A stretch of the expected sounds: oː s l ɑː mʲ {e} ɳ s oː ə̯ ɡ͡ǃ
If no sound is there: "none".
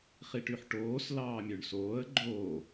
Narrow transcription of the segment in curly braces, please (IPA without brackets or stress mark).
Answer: ø